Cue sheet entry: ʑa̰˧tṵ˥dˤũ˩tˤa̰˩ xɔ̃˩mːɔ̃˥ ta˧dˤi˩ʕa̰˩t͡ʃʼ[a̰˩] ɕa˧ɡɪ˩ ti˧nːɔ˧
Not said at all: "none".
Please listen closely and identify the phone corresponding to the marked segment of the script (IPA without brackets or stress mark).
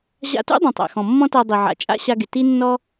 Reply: a̰˥